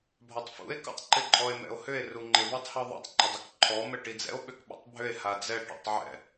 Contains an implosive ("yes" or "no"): yes